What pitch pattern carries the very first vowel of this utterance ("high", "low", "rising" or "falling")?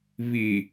low